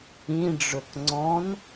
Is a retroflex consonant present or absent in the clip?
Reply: present